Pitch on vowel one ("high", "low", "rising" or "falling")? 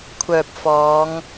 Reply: low